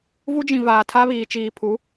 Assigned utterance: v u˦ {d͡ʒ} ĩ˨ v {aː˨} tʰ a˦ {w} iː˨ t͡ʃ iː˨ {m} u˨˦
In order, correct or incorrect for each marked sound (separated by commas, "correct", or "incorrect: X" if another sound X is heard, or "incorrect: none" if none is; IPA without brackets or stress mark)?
correct, correct, incorrect: β, incorrect: pʰ